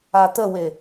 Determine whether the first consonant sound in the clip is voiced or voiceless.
voiceless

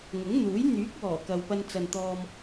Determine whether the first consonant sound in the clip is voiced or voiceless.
voiced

